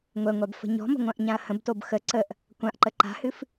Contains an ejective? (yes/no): no